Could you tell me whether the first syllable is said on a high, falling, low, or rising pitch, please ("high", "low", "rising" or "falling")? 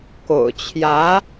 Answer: low